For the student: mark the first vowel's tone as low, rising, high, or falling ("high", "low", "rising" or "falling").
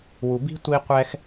low